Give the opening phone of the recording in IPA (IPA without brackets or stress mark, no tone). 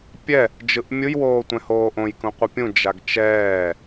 pʲ